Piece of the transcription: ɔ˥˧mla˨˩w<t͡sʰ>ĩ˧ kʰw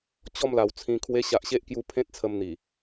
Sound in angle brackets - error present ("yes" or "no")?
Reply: no